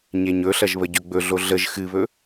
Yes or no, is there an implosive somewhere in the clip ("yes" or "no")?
no